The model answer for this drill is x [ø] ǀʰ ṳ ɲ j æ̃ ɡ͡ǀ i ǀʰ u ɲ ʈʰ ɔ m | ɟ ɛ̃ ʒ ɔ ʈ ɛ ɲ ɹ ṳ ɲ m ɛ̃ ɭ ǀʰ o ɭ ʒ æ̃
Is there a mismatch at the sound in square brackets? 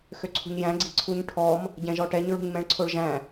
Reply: no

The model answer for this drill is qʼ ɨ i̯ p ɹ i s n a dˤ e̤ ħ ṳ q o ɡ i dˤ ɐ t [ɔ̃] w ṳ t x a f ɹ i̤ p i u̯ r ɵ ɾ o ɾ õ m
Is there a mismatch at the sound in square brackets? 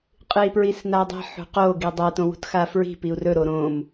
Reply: yes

